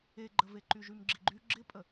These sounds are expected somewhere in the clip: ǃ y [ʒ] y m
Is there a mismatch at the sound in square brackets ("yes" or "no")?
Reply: no